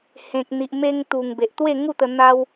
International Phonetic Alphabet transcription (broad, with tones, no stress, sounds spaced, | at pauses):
h ẽ˨ k̚ n̪ i˨ ʔ m e˧ ŋ t̪ u˨˩ ŋ b e˨ ʔ t̪ w e˥˧ ŋ u˥˧ t̪ ə˧ n̪ a˦ w